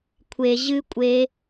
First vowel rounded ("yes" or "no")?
no